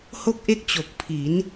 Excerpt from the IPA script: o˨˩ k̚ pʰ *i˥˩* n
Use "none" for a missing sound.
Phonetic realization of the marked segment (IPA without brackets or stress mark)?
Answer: i˩˦